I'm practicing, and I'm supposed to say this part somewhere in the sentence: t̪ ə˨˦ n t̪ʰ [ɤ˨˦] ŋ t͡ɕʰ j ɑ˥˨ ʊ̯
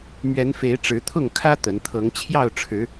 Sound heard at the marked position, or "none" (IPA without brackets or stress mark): ɤ˨˦